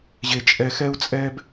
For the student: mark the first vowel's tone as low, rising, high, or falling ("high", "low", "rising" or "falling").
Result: high